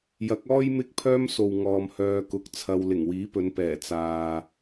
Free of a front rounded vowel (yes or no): no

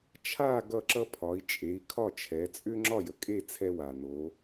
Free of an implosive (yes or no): yes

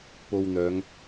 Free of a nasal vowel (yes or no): yes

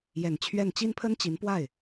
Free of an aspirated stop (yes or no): no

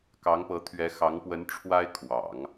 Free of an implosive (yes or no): yes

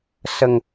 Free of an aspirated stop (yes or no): yes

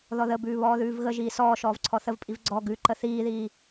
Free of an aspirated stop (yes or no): no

